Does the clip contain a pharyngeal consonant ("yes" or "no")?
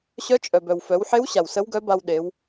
yes